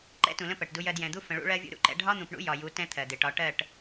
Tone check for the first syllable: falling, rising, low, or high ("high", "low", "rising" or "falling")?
high